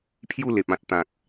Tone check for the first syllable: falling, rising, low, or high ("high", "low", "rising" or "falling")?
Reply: falling